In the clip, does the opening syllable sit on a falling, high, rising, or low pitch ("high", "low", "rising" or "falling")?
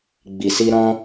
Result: low